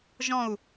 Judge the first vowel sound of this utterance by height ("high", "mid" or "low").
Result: mid